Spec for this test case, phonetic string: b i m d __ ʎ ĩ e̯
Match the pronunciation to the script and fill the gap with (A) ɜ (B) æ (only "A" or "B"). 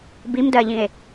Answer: A